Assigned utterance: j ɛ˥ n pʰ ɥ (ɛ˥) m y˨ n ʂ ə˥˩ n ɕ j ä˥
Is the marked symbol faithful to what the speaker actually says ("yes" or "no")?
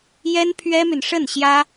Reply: yes